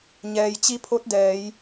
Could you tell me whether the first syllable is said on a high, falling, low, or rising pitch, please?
low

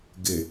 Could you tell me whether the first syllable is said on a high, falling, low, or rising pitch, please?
low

